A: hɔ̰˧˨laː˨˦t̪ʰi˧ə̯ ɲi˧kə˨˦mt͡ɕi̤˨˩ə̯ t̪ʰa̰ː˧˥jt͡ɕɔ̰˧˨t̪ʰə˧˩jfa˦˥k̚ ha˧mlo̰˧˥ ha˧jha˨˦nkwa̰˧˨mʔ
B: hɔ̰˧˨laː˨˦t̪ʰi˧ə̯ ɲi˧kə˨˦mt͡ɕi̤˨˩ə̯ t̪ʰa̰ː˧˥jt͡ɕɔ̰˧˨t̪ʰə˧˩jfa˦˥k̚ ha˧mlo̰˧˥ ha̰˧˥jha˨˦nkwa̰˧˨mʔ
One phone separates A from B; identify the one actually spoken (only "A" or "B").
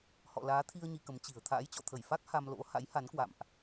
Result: B